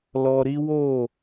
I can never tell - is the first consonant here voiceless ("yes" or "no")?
no